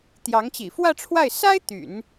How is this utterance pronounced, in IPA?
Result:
t̪ j ɑ˧˥ ŋ t͡ɕ ḭ˨˩ f w ä˥˧ ʈ͡ʂʰ w a˥˩ ɪ̯ s a˥ ɪ̯ t̪ y̰˨˩˦ n

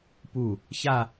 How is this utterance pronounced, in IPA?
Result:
p u˧˩ | ç a˥˧

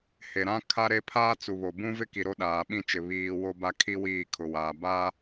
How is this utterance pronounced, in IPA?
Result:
h e˨ ɾ ã˦ kʰ a˦ ɾ e˦ pʰ aː˦ t͡s u˨ β o˨ b ũ˦ v ɪ˦ k i˨ ɾ o˦ ɗ aː˨ ɓ ĩ˦˨ t͡ʃ ɪ˨ β iː˨ w o˦ b a˦ kʰ i˦ w iː˦˨ kʰ ʊ˨ w aː˨ b aː˦

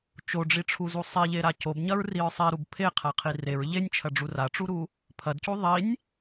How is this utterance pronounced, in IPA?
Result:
t͡ʃ o ɖ͡ʐ i ʈ͡ʂʰ u z u sˤ e ʎ e ɾ a c o b ɲ ɐ ɹ r i ɹ sˤ e ɾ u b pʰ e qʰ a qʰ i r e ɹ ʎ e nʲ t͡ʃʰ ɐ ɖ͡ʐ u r a ʈ͡ʂ u ɾ u | pʰ ɐ d c u ðˤ i nʲ

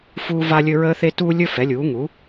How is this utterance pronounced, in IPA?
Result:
f uː˥ v a˥ lʲ ɵ˥ ɹ əː˥ θ e˥ t uː˥ lʲ ɵ˥ f ɛ˩˥ lʲ uː˩˥ ŋ u˩˥

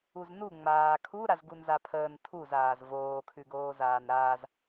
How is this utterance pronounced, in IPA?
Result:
u z n u ŋ͡m aː kʰ u ɾ a z ɡ u n z a pʰ əː n tʰ u z aː z v oː kʰ ʉ ɡ oː z aː n ɾ aː z

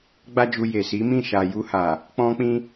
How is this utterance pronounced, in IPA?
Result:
ɡ͡b a˦ d͡ʒ u˧ j e˨ s i˨˦ m ĩ˦˨ ʃ a˨ j u˧ h a˨ | k͡p ɔ̃˧ k͡p ĩ˧

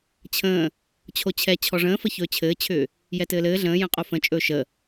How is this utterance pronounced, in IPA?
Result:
t͡ɕʰ ə̃ː | t͡ɕʰ o t͡ɕʰ ɛ t͡ɕʰ ɔ ʐ ə̃ː f ə ç ɵː t͡ɕʰ ɘː t͡ɕʰ ʏː | j ɛ t ɘː l ɘː ɮ ə̃ː j ə̃ qʼ o f ə̃ t͡ʃʼ ɵː ʃ ə

